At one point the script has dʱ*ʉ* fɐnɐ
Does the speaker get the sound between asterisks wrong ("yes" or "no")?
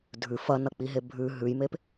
no